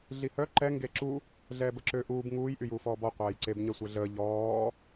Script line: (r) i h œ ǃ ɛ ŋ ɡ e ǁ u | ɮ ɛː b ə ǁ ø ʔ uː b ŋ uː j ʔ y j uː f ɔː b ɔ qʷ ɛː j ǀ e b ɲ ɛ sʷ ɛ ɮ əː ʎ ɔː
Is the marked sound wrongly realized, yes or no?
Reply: yes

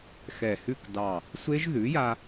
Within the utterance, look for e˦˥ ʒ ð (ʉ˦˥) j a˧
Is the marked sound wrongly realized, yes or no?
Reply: yes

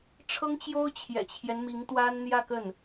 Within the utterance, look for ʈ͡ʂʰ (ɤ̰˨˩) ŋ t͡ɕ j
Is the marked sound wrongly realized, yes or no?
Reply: yes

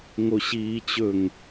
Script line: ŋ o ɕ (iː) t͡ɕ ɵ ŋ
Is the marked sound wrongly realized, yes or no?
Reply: no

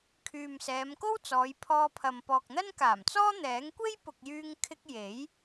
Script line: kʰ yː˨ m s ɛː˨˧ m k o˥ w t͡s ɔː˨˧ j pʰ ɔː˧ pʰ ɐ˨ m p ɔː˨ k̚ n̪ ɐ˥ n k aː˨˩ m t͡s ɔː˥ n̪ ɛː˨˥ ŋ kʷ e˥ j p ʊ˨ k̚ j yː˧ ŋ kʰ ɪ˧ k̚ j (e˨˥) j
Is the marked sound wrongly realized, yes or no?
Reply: no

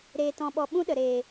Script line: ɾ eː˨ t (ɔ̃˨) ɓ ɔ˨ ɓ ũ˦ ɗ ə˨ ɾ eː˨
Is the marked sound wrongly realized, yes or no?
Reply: no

